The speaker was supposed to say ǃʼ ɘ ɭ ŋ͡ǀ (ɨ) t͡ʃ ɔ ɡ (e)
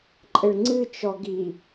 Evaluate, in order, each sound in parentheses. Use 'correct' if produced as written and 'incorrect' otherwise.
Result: correct, incorrect

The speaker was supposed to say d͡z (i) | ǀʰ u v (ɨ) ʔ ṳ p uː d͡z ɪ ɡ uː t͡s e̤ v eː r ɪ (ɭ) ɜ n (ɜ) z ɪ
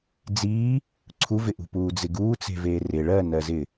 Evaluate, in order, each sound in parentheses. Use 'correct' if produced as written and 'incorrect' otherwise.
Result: incorrect, incorrect, correct, correct

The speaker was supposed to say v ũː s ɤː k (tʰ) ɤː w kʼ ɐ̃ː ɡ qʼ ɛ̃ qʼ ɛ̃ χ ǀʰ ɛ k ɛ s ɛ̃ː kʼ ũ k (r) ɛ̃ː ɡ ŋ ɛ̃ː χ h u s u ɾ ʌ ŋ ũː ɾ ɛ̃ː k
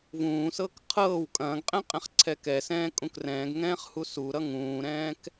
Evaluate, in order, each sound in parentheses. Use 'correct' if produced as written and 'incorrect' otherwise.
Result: incorrect, correct

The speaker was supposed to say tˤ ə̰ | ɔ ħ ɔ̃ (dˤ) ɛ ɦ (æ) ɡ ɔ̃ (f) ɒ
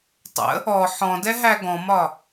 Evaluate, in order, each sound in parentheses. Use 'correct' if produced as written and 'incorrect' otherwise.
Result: incorrect, correct, incorrect

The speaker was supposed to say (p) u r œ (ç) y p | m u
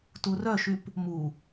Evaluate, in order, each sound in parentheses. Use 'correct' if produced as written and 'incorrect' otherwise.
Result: incorrect, incorrect

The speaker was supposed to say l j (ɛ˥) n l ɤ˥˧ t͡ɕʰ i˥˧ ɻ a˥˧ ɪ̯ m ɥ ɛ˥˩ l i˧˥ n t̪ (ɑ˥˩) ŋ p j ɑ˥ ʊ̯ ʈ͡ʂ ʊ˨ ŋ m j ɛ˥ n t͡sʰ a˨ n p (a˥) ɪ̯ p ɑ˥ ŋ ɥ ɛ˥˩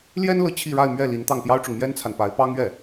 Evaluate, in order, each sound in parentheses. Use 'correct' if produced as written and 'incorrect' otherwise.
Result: correct, correct, incorrect

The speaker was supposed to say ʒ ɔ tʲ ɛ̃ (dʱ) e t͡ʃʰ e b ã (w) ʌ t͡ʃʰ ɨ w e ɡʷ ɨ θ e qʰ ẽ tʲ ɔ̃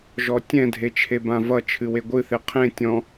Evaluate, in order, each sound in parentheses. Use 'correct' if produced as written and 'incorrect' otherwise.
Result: correct, incorrect

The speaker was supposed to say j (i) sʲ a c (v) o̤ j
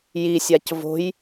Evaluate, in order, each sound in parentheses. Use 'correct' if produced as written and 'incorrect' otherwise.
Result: correct, correct

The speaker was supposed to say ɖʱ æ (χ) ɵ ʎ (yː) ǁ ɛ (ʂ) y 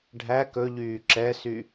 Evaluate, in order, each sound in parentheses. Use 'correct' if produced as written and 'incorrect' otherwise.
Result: incorrect, correct, incorrect

